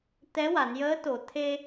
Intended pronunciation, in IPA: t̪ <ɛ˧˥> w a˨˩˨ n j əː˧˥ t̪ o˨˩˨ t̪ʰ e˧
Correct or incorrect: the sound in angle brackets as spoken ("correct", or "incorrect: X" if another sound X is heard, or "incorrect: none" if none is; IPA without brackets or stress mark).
correct